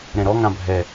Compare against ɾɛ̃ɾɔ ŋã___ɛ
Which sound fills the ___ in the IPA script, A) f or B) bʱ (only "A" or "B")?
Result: B